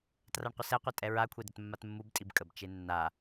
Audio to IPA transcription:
t r a ɳ qʷ ə s ɛ qʷ ɛ tʼ ɛ ɹ a kʷʰ e d ə t mː a t mː u b tʼ i b kʼ ə b t͡ʃ e nː a

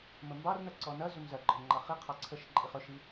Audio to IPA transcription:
m ə m b ɑ r n ɐ ǀ ɔ n ɐ z ɵ m z ɐ ɡ͡ǃ ɔ n ŋ͡ǃ ɑ χ i qʰ ɑ ǀʰ ə ʃ ǃʼ i χ ɵ ʃ i

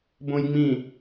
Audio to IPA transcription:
b õ j ŋ͡m ĩ

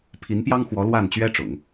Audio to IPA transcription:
pʰ i˧˥ n p j ɑ˥ ŋ x w ɔ˧˥ l w a˥˩ n t͡ɕ ɥ ɛ˥ ʈ͡ʂ ʊ̰˨˩˦ ŋ

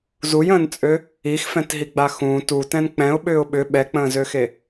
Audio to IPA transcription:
z u j ə̃ː n t͡sʼ ø | i x f ɛ̃ t ɦ i ɡ͡b a x ũ t u t ɛ̃ n k͡p ɛ̃ ʊ̯ ɓ ʏː ʊ̯ ɓ ʏ ɓ ɛ k͡p ə̃ː z ø x e

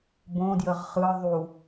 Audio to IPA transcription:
b õ d j ə ʁ χ ɯ ðˤ u

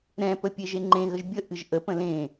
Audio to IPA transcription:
ɾ ɛ̃ p ə pʲ e ʒ e ŋ͡ǃ ẽ ɣ ə ʒ bʲ ə ʔ ɨ ʒ ʔ ə p ə̃ l ẽ

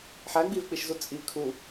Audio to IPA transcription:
ħ æ ɡ͡b i v k͡p i ʃ z u t͡sʼ i kʰ u

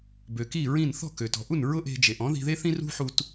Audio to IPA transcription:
b ø˩ k i˥˩ ɹ ĩ˥˩ n θ ɔ̤˥˩ k ø˩ t ɔ̤˩ ʔ u˥˩ n ɹ ʊ˥ ʔ e̤˧ d͡ʒ e˩ ʔ ɔ̃˩˥ ð i̤˧ ð e˥ θ ĩ˥ r ṳ˥ ħ u˧ t

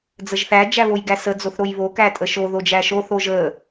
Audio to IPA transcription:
d͡z ə ʒ θ æ d͡ʒ æ β o j ɡ æ s ə d͡z o θ ɾ o j β o k æ tʼ ə ʃ o ð o d͡ʒ æ ʃ o θ o ʒ ə

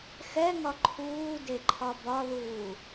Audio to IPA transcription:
x ɛ ŋ ɒ ǃʰ uː d e ǃʰ ɒ b ɒ ð uː

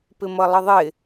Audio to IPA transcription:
p ɪ m ʌ lˠ ə ðˤ ɪ

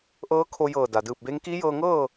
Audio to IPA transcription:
ʔ ɤː˧˥ kʰ o˧ j ɤː˧˩ d a˩ d ɯː˧˩ p̚ b e˧˥ ŋ k iː˧˥ j ɤː˧ ŋ ɤː˥˨

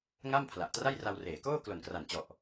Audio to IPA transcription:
ŋ a˥˩ m pʰ l a˨˩ ʔ t r a˥˩ j r a˧ w r eː˩˦ k oː˥˩ k l o˨˩ n k r a˨˩ n t͡ɕ ɔ˨˩ ʔ

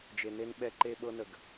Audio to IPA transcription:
d͡ʒ e˨ n e˦ n ɓ ɛ˦ ǃ e˦ ɓ ɤ˦ n ə˨ ɡ

